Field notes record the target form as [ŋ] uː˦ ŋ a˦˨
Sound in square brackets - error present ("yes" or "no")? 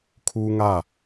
yes